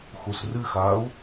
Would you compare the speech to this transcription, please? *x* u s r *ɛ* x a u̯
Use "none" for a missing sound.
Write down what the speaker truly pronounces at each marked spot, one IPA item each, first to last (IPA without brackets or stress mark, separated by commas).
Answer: x, ɨ